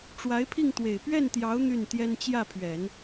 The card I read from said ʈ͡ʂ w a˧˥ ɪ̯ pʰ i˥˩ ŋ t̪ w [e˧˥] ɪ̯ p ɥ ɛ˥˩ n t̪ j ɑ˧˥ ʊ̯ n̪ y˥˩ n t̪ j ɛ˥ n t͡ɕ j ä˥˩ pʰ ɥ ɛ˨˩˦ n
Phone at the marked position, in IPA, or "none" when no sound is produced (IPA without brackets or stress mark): e˨˩